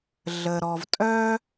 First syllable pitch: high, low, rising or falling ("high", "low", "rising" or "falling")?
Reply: low